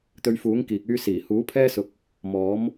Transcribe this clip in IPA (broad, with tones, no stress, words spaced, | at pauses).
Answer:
t̪ɵ˧ɥfuː˨˥ŋ kiː˨k̚yː˧ siː˨˩huː˨˥pʰɛː˥ sʊ˧k̚ | mɔː˨˥m